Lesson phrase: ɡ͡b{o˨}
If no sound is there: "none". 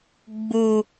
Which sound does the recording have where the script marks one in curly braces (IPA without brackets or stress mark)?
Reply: u˨